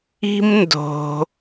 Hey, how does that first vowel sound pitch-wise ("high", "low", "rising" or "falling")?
high